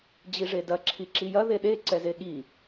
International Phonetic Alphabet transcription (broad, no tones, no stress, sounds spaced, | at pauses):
d͡ʑ i ʐ e d ɐ ǁʰ i ǁ i j ɐ ð e ɗ e ǀ ɛ z e ɠ i